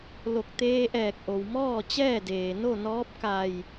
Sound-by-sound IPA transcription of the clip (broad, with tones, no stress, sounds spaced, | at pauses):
l o˧˩ k̚ t̪ eː˧ ʔ ɛː˧˩ k̚ ʔ o˩ w m ɔː˥˨ t͡ɕ ɛː˥˨ d eː˩ n o˥˨ n ɔː˧˥ p̚ k a˧˩ j